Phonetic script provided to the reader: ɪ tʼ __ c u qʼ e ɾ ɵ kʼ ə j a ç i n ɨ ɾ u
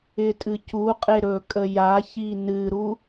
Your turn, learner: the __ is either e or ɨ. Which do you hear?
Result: ɨ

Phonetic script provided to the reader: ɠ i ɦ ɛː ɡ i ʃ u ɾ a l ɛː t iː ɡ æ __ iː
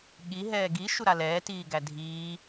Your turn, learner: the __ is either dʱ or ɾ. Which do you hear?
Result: dʱ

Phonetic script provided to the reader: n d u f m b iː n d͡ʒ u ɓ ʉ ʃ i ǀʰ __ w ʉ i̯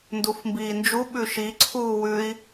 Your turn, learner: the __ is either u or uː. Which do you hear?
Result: uː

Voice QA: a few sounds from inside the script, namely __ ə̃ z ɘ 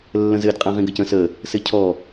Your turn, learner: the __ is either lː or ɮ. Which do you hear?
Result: lː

